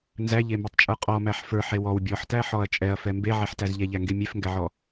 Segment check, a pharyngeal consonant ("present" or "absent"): present